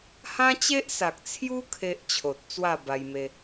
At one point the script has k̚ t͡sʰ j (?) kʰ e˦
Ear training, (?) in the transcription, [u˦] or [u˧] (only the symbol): u˦